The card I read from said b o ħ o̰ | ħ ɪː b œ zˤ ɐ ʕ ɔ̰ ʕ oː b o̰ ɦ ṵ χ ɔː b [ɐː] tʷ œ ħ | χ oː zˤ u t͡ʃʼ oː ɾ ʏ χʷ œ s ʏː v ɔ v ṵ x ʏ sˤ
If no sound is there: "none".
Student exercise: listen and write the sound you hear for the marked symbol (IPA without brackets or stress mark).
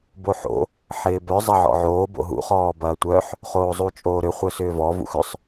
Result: ɐː